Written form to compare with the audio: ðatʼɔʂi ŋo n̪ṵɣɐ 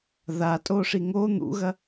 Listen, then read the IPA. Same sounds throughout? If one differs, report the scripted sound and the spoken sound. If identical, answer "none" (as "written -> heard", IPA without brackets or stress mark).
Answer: ɔ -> o